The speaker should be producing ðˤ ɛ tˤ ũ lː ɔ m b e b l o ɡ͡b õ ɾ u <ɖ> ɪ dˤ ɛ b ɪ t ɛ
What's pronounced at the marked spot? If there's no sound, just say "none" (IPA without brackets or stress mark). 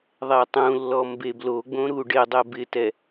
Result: ɖ